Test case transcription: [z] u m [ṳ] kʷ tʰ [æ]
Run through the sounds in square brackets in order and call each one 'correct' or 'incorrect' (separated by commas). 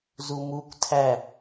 correct, incorrect, correct